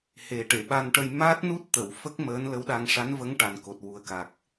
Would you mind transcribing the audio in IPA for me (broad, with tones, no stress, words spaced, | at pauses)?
he˨˩ʈe˨˩˨ɓa˧nʈə˧j ma˦˥t̚nu˦˥t̚t̪ə˨˩˨w fə˦˥k̚ məː˧˥nlə˧˥wɗa˧ŋ ʂa˧˥nvə˧˥ŋ ʈa˨˩nko˨˩t̚ wu˨˩ə̯ka˨˩k̚